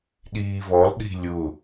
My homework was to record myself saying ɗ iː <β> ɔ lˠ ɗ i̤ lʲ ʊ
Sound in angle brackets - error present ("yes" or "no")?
no